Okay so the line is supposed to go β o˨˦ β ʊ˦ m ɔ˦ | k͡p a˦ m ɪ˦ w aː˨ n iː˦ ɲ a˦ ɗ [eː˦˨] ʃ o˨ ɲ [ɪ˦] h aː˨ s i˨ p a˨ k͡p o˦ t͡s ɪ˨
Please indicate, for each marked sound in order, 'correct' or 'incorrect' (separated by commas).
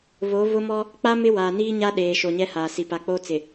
incorrect, incorrect